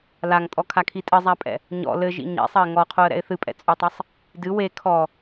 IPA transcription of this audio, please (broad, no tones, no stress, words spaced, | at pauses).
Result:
laŋtʼɔkʰakʰi tʼɘzˤapʼɛ̰ | ɲɔ̰ lɘʒḭ ɲɛ̰sˤɐɪ̯ ŋɔqʰoə̯ɾɛ̰ɪ̯ θɨpʼɛ̰t͡sʼutˤɐsˤ | dɨ we kʰɔ